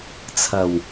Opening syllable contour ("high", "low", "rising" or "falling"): low